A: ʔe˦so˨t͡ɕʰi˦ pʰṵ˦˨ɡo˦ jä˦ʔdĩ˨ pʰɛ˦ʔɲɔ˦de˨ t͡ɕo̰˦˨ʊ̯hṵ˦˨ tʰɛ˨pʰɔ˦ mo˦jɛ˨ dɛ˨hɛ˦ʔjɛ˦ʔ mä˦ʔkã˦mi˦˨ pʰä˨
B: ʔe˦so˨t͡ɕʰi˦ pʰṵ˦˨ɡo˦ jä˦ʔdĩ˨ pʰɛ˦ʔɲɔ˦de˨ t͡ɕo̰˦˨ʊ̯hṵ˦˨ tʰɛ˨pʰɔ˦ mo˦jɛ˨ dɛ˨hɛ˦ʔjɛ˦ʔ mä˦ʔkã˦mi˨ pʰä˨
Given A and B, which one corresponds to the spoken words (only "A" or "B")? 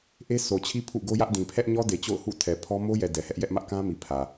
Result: B